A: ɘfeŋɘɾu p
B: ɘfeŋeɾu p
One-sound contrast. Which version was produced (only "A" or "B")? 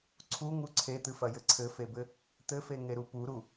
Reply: B